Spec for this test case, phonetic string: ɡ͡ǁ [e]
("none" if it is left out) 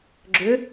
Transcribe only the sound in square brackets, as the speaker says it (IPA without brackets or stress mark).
ø